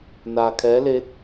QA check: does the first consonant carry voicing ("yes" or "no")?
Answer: yes